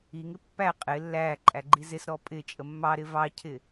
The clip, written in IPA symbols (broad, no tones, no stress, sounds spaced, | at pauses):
i ŋ ɪ pː æ qʼ ɪ lː æː ǃʼ æ ɡ͡ǃ i z ɪ s ɾ ɔ pʼ ɪ t͡ʃʼ ə mː ɑ ɾ ɪ v ɑ cʰ ɪ